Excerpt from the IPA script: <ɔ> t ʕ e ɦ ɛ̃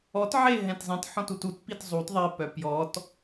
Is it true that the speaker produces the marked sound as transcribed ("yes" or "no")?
yes